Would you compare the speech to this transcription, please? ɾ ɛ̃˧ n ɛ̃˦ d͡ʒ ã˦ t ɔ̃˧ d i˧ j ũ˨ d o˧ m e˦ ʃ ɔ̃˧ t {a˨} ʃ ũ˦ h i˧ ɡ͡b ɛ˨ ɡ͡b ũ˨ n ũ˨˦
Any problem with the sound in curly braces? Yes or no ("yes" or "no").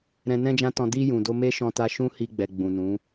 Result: yes